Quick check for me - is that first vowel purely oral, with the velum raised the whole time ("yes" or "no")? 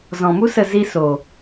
no